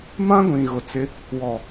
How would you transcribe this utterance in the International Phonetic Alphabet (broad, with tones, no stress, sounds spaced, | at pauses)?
m ã˦ ɡʷ ĩ˨ ɣ ʊ˨ t͡s ɪ˦ | w ɔ˨